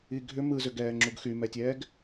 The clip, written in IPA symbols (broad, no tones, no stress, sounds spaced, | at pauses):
i ɡʱ ʏ m ɯ z ʏ ɡ ɛː ŋ͡ǁ u ɡ x y m ɛ tʲ ɛː ɡ